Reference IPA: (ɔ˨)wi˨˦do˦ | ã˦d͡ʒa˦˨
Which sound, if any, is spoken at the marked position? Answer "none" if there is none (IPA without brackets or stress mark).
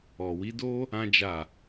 ɔ˨